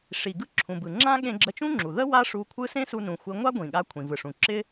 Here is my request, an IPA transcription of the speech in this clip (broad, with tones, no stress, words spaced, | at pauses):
ʂi˩ɡɯ˧ ǁʰũ˩bɯ˩ ŋ͡ǁã˥ ɠẽ˧ɡ͡ǁə˧t͡ʃũ˥ŋ͡ǁu˩ ðə˥ wa˥ʂu˧kʷʰɯ˥ sẽ˥su˧nũ˩ xʷɪ˧ ŋʷa˥ ɡʷĩ˩ɠa˧ kʷʰĩ˩vɯ˩ʂũ˩ ǁɪ˥